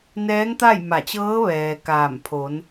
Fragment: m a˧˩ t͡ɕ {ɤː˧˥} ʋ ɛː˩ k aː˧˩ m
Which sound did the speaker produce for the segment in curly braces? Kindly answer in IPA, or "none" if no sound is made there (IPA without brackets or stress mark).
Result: ɤː˧˥